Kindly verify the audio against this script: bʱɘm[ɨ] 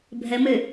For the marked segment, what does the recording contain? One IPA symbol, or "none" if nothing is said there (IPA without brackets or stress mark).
ɨ